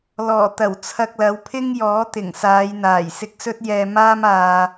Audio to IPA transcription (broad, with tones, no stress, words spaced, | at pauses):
lɔː˨˩t̪ɐ˨˩w t͡sʰɐ˧k̚lɐ˨˧wpʰɪ˥ŋjɔː˨˥ t̪ɪ˨˩ŋsaː˨˧jn̪aː˨˩j sɪ˧k̚sɵ˥t̚jɛː˧ maː˥maː˧